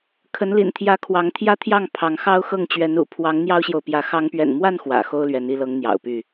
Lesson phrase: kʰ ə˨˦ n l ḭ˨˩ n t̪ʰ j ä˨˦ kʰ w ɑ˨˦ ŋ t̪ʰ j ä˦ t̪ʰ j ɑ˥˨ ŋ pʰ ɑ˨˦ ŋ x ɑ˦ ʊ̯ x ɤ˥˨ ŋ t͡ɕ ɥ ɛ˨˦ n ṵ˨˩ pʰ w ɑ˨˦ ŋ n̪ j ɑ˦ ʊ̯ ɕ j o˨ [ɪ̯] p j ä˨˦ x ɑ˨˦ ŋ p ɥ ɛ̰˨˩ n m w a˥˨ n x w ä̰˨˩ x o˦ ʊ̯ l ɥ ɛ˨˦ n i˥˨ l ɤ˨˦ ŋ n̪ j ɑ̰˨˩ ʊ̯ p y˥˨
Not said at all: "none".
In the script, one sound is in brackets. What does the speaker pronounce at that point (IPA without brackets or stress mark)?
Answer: ʊ̯